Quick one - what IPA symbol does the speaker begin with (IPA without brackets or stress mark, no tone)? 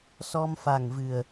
s